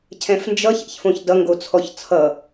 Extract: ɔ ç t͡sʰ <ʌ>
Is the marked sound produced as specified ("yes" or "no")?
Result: yes